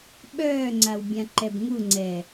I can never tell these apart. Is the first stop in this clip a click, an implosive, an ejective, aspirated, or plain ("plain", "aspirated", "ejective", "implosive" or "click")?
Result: implosive